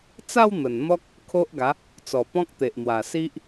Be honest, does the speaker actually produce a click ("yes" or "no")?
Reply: no